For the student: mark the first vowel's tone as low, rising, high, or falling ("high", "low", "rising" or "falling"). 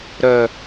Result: low